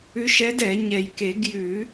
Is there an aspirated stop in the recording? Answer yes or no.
no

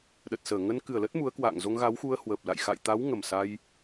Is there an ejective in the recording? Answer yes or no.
no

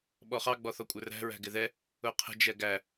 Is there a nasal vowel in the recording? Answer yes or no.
no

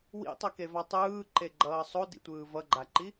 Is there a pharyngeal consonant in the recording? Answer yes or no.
no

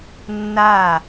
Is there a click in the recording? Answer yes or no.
no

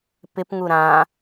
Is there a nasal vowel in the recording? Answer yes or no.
yes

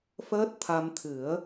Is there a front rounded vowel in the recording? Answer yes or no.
no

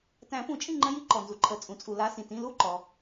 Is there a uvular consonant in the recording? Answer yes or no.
no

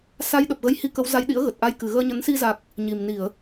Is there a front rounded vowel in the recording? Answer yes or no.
no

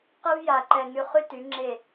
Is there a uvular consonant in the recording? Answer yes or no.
yes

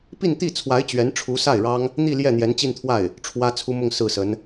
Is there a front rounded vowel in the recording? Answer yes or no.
no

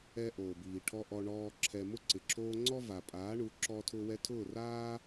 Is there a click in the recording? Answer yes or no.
yes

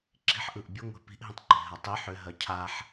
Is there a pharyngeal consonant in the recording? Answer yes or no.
yes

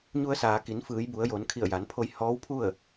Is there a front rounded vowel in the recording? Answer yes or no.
no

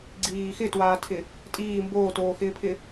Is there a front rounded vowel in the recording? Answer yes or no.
no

